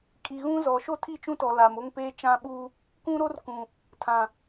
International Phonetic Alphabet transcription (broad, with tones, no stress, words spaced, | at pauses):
kʼi˨ɣũ˦zɔ˨ ʃo˦tʰi˦˨t͡ʃũ˦tɔ˨ la˨mo˦ŋpeː˦ t͡ʃã˦ɓuː˦ | kũ˦ɾo˦rkũ˨ | tʰã˨